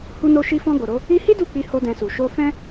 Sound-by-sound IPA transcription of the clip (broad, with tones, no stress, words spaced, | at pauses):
hu˧no˧ʃi˧fɔ̃˧ ɡo˨ɾo˨˦ | i˧hi˦ du˦˨k͡pi˧ ho˦dɛ̃˧su˨ ʃo˧fɛ̃˦